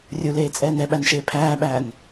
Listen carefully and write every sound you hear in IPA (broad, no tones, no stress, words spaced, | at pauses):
rʲuleːt͡sʼɛːn ɛɓænʃeː pʰæːɓæːn